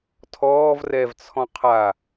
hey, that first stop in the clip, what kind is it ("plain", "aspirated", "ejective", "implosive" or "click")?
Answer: aspirated